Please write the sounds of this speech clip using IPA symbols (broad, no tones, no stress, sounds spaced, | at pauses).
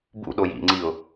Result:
b ṵ ɗ o j ḭ ŋ͡ǀ i ʊ̯